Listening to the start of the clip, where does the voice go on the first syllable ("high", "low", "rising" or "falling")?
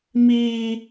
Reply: high